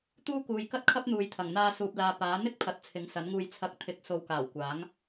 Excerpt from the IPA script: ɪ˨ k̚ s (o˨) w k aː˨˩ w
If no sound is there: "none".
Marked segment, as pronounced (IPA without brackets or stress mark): o˨